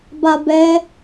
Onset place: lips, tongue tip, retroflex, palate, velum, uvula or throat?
lips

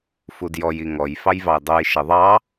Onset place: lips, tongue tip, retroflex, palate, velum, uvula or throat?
lips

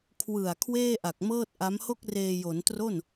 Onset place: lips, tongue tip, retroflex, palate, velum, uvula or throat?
velum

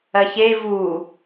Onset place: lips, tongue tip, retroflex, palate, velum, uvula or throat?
palate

